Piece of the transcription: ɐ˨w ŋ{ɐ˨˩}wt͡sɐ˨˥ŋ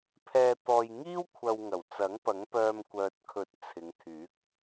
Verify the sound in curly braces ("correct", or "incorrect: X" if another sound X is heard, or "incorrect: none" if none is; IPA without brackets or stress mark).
correct